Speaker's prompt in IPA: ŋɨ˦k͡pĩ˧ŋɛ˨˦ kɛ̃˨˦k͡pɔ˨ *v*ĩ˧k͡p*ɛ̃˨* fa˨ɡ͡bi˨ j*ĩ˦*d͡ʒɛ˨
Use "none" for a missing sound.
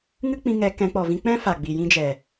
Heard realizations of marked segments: v, ɛ̃˦, ĩ˦

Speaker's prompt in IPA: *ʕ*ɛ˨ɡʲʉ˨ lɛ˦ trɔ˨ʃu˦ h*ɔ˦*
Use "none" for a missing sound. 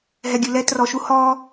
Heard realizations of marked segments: ɦ, ɔ˦

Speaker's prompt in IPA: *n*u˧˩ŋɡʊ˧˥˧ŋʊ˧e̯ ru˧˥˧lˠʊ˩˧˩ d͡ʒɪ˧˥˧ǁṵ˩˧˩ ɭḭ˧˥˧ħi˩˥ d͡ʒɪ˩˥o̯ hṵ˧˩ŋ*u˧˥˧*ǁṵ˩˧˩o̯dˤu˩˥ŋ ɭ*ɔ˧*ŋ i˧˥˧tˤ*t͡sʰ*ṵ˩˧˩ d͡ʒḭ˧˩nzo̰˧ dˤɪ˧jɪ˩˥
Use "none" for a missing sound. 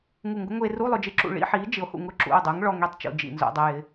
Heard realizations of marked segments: ŋ, ʊ˧˥˧, ɔ˧, t͡ʃ

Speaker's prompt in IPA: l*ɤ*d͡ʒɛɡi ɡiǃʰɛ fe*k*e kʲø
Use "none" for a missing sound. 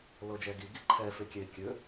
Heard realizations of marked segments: ɤ, kʲ

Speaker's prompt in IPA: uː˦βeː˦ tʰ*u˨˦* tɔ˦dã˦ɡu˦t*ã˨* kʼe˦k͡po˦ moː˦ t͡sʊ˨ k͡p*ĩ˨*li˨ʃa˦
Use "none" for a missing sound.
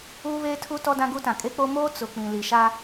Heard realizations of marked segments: u˦, ã˨, ĩ˨

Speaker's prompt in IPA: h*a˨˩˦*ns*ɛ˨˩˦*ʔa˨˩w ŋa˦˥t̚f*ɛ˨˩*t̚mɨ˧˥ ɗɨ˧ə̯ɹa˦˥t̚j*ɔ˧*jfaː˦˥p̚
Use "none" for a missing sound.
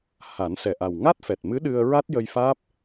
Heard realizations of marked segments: a˨˩˦, ɛ˨˩, ɛ˨˩, ə˧

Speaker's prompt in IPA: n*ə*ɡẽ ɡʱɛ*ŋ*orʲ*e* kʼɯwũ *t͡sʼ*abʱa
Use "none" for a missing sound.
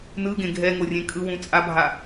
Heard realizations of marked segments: ɯ, ŋ, ẽ, t͡sʼ

